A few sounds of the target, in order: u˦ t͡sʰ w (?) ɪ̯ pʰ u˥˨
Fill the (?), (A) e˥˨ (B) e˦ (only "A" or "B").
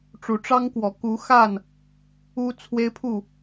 B